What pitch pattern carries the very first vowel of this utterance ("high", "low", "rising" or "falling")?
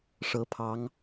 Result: rising